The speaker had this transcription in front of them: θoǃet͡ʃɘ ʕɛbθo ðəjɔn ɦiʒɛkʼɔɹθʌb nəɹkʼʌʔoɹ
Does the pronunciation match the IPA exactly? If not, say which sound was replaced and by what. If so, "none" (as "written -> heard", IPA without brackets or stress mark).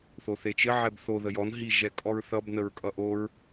ǃ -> θ